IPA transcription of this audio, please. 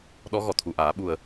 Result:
ɗ ɔ˧˥ ɣ ɔ˨˩˨ t̪ʰ u˨˩˨ ʔ aː˨˩˦ ɓ u˨˩ ə̯

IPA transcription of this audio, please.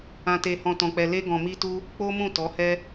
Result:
ã˧ t e˧ h ɔ̃˧ t ɔ̃˧ k͡p ɛ˧ l e˦ ɡ ɔ̃˧ m i˦ t u˦ | k͡p o˦ m ũ˦˨ t ɔ˨˦ h ɛ˦

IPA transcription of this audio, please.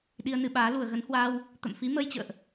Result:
ɗ i˧ ə̯ n ɨ˧ ɓ aː˨˦ l u˨˩ ə̯ ɣ ə˨˦ n h w aː˧ w | t̪ ə̰˧˨ m f i˨˦ m əː˧ j t͡ɕ ə̰ː˧˨ ʔ

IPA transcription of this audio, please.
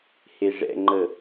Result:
h e ʐ ɛ̰ ŋ͡ǃ ə

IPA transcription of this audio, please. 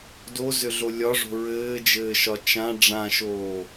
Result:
d o z ʏ ɮ o lʲ ɒ ʐ o̤ ɹ ɘː d͡ʒ ɘː ʃ ɒ t͡ʃ ã ɖ͡ʐ ã ʃ oː

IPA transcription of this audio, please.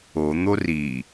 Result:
o n̪ o r i

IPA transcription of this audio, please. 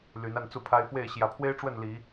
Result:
l y˨˦ n a˥˨ n t͡s u˥˨ pʰ a˦ ɪ̯ f w e˥˨ ɪ̯ ɕ j ä˨˦ pʰ w e˦ ɪ̯ ʈ͡ʂ w ə˥˨ n l i˨˦

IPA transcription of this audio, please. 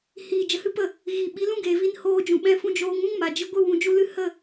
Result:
h iː˨ d͡ʒ ə˨ h ɨ˦ p ə˦˨ | ɣ i˨ ɓ i˨˦ l ũ˦ ɡ eː˨ v i˧ n h oː˧ d͡ʒ ũ˨ ɓ ɛ̃˧ f ũ˧ d͡ʒ oː˧ ŋ ũ˦ ŋ m a˨ d͡ʒ ɨ˧ ɡʷ ɨ˦˨ w ũ˨ d͡ʒ u˧ l ɨ˦ h ə˦˨

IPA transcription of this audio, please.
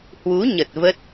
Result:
h w u˨˦ ɲ ə˨˩ t̚ v ə˦˥ t̚

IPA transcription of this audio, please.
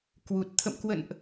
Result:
k w u˨˩ t̚ t̪ʰ ə̰˧˨ m k w ə̰˧˨ n ʔ

